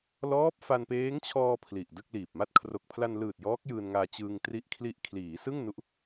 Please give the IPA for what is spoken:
lɔː˦˥p̚fa˧npeː˦˥ŋt͡ɕʰɔː˧ pʰli˨˩ʔdɯ˥˩k̚liː˨˩p̚ma˥˩t̚ kʰro˨˩k̚pʰla˧nlɯː˨˩t̚ jɔː˦˥k̚jɯː˧nŋaː˧ t͡ɕɯː˧ŋtri˦˥ʔkʰli˦˥ʔ kʰliː˩˦sɯ˥˩ŋ nu˦˥ʔ

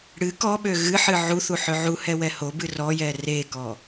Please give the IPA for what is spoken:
ɽɨ kɔɓø ɣɨħɨ ʕuθu ħøʕuhɛ wɛhobɨ rɔjɛ rekɔ

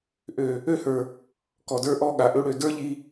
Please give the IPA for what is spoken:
ʔø˨ | ø˦hə˞˨ | kɔ˨də˞˦ʔɔ˦ɠa˨ ʔø˧ɽø˨ də˞˦ʎi˧

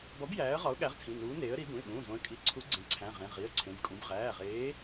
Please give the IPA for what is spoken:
bɒ˨˥b jæː˨˥ə̯ʁɒ˨˥ʊ̯ɠæ˨˥ʁ tʰĩ˩˧˩nuː˨˥ neː˨˥ə̯ɾi˨˥ dũ˩˧˩ɪ̯ɠũː˩˧˩zõ˨˥ə̯ kʼi˨˥ ǀʰu˨˥ ɡ͡ǀẽ˩˧˩ǀʰæ̃˩˧˩ʁẽ˩˧˩ ʁi˩˧˩ə̯ǀʰẽ˩˧˩bkʼũ˨˥b ʁæː˩˧˩ʁeː˨˥

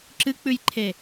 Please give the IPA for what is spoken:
ǁɨk͡pʉjǃʰe

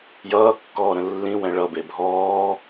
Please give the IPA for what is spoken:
jʌːkːɔːɾə̃ lːĩwɛ̃ ɭʌbe bʱɔː

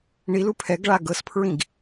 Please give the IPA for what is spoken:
ɳilu pʰɛɡɭa ɡɤspʰɹĩɡ

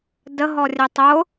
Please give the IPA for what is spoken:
dəɦɔrʲɛ tˤʊ

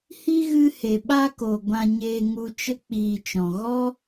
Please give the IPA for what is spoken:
hi˦ɣɨ˧he˨ ɓa˧ko˨ ɡʷã˧ɲeː˧ŋu˧t͡ʃə˦ k͡piː˨t͡ʃɔ̃˨ ɣɔ˦

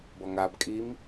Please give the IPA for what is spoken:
bɔŋabkʼim

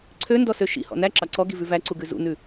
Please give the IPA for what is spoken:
ǀʰøndɔsø ʃḭhɔ̰ næǁɑ ǀɔɡivʉ væǀuɡʉ zṵnʉ

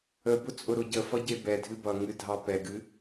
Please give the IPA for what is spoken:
əbʊ t͡sʼʊɾʊɟəfʌ ɟebɛdʱɨ bʌŋɨ dʱɑpɛɡɨ

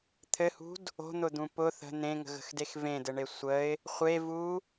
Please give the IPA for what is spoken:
t̪ʰɘhṳd | o̤n̪ʊd̪ũ pʊ θə̤ n̪ẽŋə̤ɣə̤xdex vẽdɘɳe sʷəɪ̯ | χʷevu

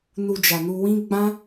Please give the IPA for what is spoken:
nu˧d͡ʒa˨nu˧wĩ˦ ɡ͡bã˦

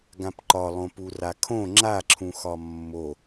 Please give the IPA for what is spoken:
ɡãpǃɒlˠõ purakʰõ ŋ͡ǁaǁʰũ xɒmːo

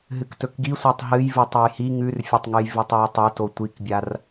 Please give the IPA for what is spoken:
ɦɨktɵkɡisʷatˤ ɦɨj vɨtˤejhi ŋʉrfʲɵtˤŋɨj vitˤjitˤoto tʷikbʲar

